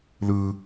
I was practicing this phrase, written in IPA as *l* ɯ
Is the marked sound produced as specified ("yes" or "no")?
yes